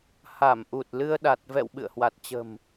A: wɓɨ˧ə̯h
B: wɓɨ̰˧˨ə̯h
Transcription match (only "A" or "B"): B